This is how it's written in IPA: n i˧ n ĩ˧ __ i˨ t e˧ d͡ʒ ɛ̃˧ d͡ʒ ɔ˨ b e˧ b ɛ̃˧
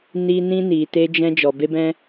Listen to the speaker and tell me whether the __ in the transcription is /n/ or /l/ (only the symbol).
n